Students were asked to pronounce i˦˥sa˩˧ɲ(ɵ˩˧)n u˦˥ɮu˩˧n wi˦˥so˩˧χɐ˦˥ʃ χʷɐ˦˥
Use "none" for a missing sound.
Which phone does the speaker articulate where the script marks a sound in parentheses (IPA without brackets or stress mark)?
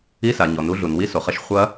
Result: ɔ˩˧